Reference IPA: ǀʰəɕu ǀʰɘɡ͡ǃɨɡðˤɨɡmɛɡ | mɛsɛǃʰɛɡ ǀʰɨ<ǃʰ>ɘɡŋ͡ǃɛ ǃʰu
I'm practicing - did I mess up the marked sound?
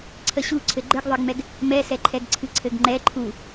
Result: yes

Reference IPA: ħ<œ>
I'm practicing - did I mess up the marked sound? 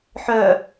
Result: no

